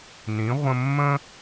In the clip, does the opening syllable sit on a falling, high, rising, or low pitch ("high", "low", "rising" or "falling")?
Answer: rising